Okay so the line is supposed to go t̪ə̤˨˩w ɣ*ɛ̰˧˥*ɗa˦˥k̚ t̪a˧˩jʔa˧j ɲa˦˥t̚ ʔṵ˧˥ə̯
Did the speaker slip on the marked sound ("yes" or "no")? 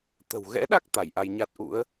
no